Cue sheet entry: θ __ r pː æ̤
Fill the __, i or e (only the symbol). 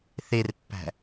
e